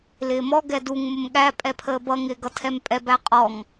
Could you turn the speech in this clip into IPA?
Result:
l ɪː m ɔ ɡ ɛ d u ŋ m ʊ m ɠ æ pʼ ɛ pʰ əː b ʌ ŋ ɪː ɡ ʌ tʰ ɛ m pʼ ɛ b æ qʼ ɔ ŋ

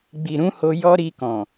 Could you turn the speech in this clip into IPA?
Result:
ɡ͡b i˨ ɾ ũ˨˦ h o˧ j ɔ˦ ɾ i˧ k ɔ̃˨

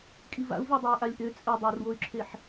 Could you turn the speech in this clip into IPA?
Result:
kʼ i v a̰ u̯ v ø dˤ e y̯ ʔ a lʲ ʔ ø t͡sʼ ɘ dˤ o r w o y̯ ǁʰ e ħ

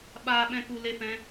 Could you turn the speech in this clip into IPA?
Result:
ɓ aː˧ ɓ ɛ̃˧ k u˧ l e˦ f ɛ̃˦

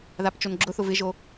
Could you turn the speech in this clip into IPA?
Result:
ð a p t͡ʃ o n ɡ͡ǁ ʊ θ ʊ v ɪ ʒ o

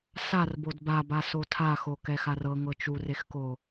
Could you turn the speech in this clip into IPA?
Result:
s a r b o d b a b a s o tʰ a x o k ɛ x a r ɤ ŋ ɤ t͡ʃ u r e x k o

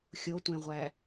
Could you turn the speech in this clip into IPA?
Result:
xʲ o tʷ ẽ ʁʷ æ

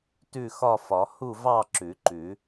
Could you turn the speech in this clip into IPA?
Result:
t ʉ˥˨ x ɒ˥˨ f ɒ˨˩˦ h u˥˨ v ɑ˥˨ ǁ ʉ˨˩˦ ǃ ʉ˨˩˦

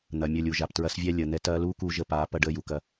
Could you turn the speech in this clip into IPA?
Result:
n̪ ɐ˨ mʲ ə˦˨ lʲ u˨ ʒ a˨ p t ɹ ɐ˦ s vʲ ɛ˦ lʲ əː˨ n̪ ɛ˦ t ɐː˦ l uː˦ k uː˧ ʒ ə˧ p aː˨˦ p ɐ˦ ɖ əː˦ j u˨ k ɐ˦

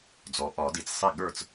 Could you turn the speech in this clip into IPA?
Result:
d͡z ɔ˩˥ ʔ ɒ˨˩˦ d i˨˩˦ t͡s sˤ i˥˨ ɠ ə˞˥˨ t͡s

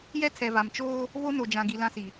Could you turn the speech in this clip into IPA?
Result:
j ɛ˦ tʰ ɛ˨ v a˨ m t͡ʃ oː˦ | v o˦ n o˨ d͡ʒ ã˨ ɡ i˨ l ã˦ s i˨

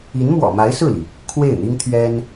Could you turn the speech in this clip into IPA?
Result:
i˧˥ n m w ɔ̰˨˩ m a˧˥ ɪ̯ s ɹ̩˥˩ l i˩ | kʰ w e˥˩ ɪ̯ n̪ i˥ ŋ t̪ʰ ɥ ɛ˥ n

